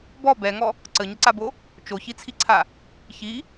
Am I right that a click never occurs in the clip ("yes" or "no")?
no